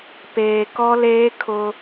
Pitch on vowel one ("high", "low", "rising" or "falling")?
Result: low